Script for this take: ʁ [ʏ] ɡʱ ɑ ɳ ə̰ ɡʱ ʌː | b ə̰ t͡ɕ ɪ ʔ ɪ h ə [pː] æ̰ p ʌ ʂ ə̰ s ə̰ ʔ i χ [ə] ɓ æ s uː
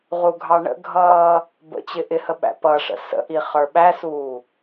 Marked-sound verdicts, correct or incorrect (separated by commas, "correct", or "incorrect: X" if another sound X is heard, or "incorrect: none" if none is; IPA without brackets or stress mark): incorrect: u, incorrect: ɓ, incorrect: ə˞